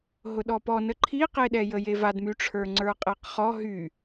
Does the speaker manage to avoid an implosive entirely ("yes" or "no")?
no